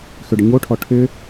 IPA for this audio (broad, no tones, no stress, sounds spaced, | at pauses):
x ʏ ɖ ə ɲ o ʈʰ ɔ ʈʰ ʏ